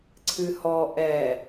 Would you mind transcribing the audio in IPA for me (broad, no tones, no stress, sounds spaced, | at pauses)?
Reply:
ǀʰ ɨ h ɔ ʔ ɛ